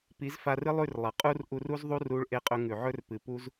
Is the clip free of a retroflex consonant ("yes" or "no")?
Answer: no